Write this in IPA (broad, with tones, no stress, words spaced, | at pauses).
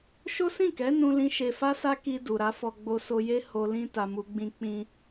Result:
ʃo˦sĩ˦˨kɛ˨˦ nũ˧lĩ˧ ʃe˨fa˧sa˧ ki˧ du˨ɾa˨˦fɔ˧ ɡ͡bo˧so˧je˦ ho˧lĩ˦ ta˧mu˧ɡ͡bĩ˦ k͡pĩ˧